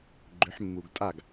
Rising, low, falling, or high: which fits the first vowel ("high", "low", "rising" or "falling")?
rising